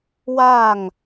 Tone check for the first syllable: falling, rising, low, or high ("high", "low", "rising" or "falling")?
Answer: falling